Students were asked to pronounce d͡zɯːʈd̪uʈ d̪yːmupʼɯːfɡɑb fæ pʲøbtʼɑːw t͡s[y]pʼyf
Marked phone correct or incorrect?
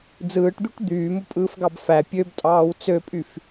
incorrect